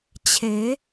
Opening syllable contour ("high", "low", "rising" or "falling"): rising